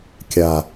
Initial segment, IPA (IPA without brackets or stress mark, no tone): kʲ